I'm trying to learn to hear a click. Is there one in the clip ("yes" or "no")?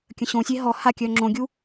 yes